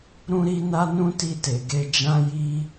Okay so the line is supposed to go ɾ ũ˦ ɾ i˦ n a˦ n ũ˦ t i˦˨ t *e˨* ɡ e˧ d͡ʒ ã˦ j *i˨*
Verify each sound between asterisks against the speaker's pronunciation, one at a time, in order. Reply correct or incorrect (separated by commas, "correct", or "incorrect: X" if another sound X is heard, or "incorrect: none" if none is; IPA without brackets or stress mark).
correct, incorrect: i˦